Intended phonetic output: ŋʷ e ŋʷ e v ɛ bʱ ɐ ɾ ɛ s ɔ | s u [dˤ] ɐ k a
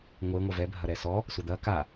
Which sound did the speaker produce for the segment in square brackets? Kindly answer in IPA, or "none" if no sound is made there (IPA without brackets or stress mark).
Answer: d̪